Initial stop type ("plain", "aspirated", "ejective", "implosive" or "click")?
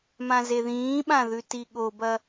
implosive